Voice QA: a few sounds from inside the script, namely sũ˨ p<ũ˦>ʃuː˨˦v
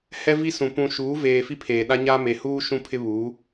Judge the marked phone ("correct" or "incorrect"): incorrect